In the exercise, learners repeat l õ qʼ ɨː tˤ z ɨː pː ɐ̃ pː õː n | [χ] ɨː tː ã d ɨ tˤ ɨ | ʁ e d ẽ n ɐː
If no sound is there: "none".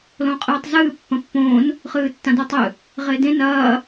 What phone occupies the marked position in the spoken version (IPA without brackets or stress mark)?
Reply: χ